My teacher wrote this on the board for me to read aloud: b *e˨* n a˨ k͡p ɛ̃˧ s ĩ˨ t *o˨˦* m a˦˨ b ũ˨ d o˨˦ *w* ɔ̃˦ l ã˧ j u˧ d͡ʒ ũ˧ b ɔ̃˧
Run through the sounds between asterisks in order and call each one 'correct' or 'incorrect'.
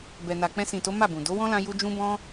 incorrect, correct, correct

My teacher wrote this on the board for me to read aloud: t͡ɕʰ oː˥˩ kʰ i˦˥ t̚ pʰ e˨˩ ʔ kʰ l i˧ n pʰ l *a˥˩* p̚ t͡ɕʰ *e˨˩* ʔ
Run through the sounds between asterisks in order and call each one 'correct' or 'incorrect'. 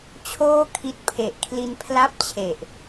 correct, correct

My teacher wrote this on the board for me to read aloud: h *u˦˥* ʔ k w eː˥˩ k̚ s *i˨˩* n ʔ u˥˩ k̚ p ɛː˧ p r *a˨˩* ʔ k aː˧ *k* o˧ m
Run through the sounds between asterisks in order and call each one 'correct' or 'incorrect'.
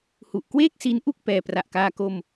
incorrect, incorrect, correct, correct

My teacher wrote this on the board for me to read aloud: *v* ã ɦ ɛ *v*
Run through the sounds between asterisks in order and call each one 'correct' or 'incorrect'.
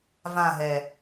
correct, incorrect

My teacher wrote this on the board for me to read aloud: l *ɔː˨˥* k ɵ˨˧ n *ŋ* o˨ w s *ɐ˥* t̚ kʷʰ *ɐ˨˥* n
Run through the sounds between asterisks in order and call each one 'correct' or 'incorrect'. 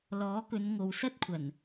correct, correct, correct, incorrect

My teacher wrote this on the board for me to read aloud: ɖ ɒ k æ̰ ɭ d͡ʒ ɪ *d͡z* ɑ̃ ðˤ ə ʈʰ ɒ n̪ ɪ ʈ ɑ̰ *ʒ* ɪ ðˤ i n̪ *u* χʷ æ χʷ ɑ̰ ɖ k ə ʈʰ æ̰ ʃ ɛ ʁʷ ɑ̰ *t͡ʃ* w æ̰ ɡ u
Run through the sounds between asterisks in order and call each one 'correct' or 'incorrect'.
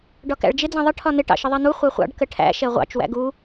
correct, incorrect, correct, correct

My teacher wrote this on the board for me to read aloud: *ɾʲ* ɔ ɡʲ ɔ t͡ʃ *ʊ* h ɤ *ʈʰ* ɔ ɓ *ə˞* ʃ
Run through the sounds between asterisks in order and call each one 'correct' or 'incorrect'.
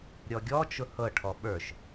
correct, correct, correct, correct

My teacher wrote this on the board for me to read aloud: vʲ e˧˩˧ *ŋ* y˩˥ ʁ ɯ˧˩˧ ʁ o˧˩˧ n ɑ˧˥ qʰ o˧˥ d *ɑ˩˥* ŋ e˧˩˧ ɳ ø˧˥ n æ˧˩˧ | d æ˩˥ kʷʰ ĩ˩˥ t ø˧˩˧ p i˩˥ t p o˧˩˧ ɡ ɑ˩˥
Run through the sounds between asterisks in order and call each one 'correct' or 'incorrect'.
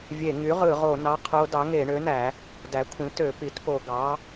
correct, correct

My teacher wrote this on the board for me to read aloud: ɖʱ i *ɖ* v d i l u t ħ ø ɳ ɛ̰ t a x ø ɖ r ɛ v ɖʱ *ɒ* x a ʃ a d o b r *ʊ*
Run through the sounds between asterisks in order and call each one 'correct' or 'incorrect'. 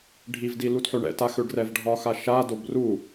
incorrect, correct, incorrect

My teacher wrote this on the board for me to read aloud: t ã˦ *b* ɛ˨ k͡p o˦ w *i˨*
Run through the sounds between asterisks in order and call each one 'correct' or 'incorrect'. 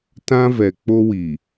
incorrect, correct

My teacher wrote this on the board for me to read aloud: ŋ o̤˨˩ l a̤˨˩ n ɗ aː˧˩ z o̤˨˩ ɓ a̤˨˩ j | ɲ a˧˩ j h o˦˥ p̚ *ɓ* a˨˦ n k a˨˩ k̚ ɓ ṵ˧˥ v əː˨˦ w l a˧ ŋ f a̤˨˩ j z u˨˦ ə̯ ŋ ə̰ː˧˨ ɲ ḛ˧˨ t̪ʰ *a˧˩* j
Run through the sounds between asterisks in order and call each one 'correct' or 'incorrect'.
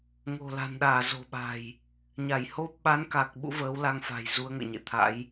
correct, incorrect

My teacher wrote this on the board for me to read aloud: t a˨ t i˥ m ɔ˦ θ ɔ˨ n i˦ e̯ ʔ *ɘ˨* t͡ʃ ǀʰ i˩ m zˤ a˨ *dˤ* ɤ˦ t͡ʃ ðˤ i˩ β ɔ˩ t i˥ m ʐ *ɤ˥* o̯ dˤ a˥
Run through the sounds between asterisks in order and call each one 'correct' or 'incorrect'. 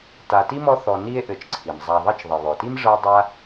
correct, incorrect, correct

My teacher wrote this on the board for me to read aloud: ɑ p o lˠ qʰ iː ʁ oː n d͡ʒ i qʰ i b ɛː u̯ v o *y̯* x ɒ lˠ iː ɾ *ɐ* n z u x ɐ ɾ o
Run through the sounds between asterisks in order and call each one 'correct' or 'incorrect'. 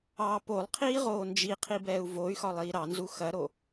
correct, incorrect

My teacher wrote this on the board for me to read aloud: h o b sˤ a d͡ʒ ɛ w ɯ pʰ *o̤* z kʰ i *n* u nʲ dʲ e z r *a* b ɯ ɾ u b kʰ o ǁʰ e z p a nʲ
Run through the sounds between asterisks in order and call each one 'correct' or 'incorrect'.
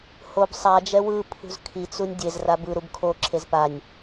incorrect, incorrect, correct

